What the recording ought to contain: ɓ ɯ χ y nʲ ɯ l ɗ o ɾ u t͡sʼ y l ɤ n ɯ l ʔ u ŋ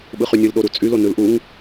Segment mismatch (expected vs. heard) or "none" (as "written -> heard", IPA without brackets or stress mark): ɤ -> o